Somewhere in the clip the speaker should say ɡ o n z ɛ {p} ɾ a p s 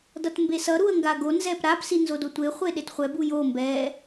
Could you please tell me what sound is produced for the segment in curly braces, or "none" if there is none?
p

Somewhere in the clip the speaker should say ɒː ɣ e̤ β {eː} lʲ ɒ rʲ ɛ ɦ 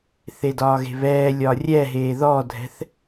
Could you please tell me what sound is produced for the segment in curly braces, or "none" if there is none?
ɛː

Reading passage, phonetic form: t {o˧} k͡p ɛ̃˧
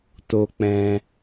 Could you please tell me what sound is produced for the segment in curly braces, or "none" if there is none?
o˧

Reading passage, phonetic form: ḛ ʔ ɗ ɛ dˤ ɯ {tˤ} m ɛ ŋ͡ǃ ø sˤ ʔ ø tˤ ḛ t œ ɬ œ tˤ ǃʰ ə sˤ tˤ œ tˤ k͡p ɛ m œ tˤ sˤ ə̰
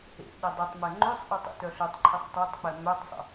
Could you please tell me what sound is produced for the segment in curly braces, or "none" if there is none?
tˤ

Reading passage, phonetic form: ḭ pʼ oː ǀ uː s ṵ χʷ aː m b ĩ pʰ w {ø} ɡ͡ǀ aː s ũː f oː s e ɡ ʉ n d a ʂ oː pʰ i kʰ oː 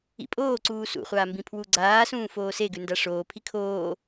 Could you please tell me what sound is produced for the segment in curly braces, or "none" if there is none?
u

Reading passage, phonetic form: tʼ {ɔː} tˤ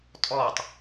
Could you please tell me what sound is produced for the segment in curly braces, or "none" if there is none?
ɔː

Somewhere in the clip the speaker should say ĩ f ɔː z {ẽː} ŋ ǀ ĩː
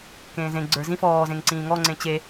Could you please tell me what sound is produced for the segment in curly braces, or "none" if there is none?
ẽ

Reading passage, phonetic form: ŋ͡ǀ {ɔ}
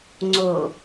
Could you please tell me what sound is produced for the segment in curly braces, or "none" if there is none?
o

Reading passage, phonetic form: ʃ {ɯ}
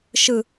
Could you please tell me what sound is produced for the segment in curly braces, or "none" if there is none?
ɯ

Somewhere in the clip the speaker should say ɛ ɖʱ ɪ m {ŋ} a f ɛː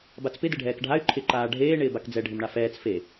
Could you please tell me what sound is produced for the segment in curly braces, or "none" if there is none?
ɳ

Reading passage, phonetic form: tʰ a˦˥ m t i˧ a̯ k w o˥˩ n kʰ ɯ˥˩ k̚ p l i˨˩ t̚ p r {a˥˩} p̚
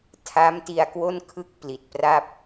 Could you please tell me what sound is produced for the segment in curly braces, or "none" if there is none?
a˥˩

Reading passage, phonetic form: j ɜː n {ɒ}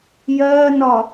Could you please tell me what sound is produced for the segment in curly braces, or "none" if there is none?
ɒ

